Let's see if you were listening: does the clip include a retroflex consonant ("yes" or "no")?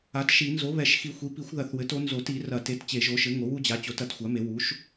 no